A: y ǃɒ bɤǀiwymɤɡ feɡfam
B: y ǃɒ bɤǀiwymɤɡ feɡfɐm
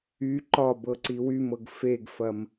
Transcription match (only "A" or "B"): B